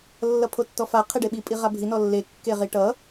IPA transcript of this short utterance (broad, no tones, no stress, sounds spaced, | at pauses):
lː ʌ pʰ o tː ɔ f a qʰ e ɖ e ɓ i pʼ i ʁ a bʱ i n ɔ lː e kː e ʁ i ʈ ʌ